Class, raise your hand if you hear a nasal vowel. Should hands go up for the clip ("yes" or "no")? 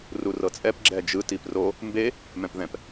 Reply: yes